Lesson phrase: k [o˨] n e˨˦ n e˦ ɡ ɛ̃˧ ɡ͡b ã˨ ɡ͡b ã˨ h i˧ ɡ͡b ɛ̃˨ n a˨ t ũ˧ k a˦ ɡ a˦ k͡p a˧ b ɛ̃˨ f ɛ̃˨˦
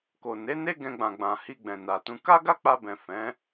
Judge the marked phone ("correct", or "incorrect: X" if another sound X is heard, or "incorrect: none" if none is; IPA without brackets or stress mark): correct